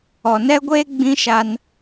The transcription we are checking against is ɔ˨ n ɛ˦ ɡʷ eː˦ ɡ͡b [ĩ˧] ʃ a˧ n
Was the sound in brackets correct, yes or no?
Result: no